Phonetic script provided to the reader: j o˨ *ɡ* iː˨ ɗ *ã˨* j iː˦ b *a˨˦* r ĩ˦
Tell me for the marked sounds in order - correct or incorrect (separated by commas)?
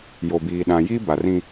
incorrect, correct, incorrect